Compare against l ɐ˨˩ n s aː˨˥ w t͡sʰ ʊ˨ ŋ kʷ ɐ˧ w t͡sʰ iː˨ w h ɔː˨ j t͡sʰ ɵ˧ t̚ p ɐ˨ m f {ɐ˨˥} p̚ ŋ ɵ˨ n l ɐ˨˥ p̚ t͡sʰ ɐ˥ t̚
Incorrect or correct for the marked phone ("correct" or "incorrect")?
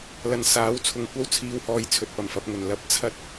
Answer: correct